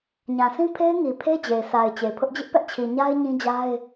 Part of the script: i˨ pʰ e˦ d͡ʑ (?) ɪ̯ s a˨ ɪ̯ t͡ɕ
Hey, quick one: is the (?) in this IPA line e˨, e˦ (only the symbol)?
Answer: e˨